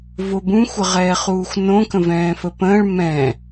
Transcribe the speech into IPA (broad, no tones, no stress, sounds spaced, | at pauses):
v o b ũ xʷ ə ʁ ɛː χ uː xʷ n õ k ə̃ v ɛ̃ː f ə p ə̃ː ɭ m ɛ̃ː